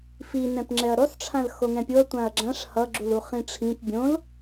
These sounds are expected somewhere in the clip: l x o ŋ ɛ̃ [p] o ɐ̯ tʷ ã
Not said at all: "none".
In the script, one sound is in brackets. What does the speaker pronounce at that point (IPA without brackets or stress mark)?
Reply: pʲ